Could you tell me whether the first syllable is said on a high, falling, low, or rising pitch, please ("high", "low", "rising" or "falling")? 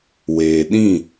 low